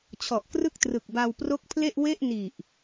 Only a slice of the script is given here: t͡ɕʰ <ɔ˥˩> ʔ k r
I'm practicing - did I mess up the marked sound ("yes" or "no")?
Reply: yes